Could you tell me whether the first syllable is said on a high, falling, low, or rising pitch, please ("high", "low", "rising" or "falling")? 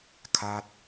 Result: falling